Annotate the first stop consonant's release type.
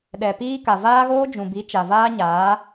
implosive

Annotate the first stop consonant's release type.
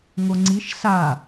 click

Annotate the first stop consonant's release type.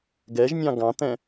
plain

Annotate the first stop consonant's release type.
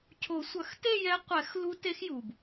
aspirated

